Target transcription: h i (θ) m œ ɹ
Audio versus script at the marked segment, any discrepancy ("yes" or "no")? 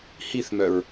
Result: no